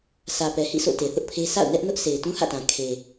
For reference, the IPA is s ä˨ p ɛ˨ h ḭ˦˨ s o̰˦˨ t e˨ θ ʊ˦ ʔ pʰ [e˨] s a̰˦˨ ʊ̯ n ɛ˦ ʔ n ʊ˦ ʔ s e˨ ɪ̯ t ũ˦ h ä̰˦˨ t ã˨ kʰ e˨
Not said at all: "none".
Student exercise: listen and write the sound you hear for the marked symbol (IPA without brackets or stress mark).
e˦